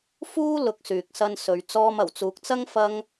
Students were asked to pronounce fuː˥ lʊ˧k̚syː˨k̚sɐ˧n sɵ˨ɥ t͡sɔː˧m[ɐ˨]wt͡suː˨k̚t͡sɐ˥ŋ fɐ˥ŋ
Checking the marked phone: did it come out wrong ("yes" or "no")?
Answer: yes